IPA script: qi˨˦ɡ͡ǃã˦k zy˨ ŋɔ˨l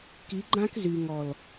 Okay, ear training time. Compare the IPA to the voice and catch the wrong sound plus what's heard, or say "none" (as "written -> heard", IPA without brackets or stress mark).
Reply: q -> k